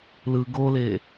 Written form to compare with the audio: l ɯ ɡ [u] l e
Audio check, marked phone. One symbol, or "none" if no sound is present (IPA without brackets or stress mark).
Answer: o